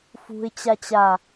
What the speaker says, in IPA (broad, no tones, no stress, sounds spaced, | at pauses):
f ṳ ɪ̯ t͡ɕ a t͡ɕ a